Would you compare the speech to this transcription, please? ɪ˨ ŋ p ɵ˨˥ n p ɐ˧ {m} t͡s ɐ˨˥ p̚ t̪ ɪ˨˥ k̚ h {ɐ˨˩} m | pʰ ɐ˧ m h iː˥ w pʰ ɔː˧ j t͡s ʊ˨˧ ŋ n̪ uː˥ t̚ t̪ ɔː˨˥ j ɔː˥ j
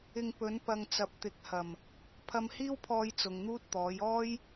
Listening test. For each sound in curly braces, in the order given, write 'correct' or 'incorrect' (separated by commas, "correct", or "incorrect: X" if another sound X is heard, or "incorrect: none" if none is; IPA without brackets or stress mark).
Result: incorrect: ŋ, correct